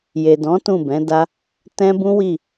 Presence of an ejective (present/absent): absent